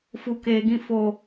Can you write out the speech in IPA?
f u˨ k eː˨ ɡ ĩ˧ f o˨

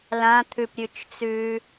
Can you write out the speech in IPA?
l ã t̪ʰ ʉ p ɾʲ ʉ t͡ʃ t͡s ʉː

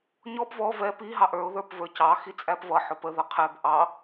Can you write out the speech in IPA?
ɲ ɔ b v ɔ v ɛ p i ɦ ɑ ʔ ə˞ ʊ̯ ð ə˞ p v ə˞ c ɑ x i t͡sʼ æ p v ʌ ħ ʊ p ə ð ʌ qʰ ɛ b ʔ ɑ

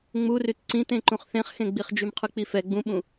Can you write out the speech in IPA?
ŋ͡m u r y t ǀ ĩ t ẽ ǃ ũ χ θ ẽ χ x ẽ ɡ͡b i χ d͡ʒ y m qʰ ʉ k͡p i f ɛ ɡ͡b ũ ɓ ũ

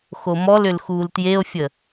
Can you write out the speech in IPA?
x o m ɔ l ʏ l x uː l t j e o̯ fʲ ə

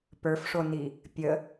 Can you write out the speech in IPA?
p ə˞ f ʂ o n i | pʲ ə

